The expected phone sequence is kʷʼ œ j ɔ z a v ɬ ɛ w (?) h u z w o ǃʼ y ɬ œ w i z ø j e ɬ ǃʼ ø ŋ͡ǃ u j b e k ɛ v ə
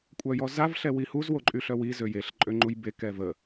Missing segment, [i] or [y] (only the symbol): i